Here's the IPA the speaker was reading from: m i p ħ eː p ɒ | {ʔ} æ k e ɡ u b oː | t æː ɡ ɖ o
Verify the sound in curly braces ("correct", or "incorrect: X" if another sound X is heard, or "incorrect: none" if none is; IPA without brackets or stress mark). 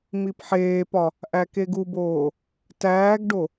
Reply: correct